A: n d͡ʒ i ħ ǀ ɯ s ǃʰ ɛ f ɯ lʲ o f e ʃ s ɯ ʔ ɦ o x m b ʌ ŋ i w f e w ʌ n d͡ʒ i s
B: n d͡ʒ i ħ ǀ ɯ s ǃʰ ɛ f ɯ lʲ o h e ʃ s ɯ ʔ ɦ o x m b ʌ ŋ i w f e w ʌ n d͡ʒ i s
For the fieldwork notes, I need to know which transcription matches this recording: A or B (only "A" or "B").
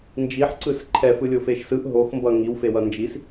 A